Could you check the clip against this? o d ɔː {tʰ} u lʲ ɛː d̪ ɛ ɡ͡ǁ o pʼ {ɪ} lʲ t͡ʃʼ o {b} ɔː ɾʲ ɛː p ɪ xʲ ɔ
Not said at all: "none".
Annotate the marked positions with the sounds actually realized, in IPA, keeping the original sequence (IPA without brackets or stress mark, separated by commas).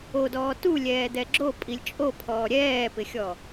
t, i, pʰ